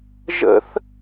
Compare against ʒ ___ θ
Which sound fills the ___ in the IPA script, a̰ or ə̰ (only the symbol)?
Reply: ə̰